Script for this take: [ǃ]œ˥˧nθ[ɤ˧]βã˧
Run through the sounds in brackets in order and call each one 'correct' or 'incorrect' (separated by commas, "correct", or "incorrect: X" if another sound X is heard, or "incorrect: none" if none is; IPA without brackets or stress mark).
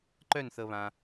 correct, correct